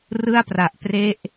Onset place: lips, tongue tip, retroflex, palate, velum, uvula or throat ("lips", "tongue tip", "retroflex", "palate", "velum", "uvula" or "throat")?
tongue tip